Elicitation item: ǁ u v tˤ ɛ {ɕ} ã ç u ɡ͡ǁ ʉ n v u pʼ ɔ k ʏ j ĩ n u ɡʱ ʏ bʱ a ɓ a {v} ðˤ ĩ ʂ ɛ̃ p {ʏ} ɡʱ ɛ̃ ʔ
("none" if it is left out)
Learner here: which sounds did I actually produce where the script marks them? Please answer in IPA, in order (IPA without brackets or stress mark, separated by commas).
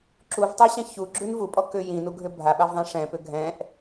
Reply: ɕ, v, ʏ